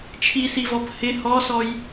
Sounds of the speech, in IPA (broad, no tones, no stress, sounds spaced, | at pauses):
t͡ʃʰ i s i v ɔ b h ɪ h ɔ s ɔ j